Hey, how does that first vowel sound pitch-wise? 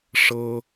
high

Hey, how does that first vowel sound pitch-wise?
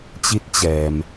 rising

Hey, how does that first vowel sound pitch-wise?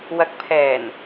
rising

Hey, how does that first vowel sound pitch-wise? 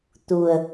low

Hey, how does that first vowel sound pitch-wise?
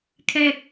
low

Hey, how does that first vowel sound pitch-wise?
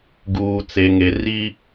low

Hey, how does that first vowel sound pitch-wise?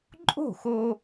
falling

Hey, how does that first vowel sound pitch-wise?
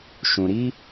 low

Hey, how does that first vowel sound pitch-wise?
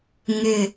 low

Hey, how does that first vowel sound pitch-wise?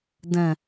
low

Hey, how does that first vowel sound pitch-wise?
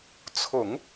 low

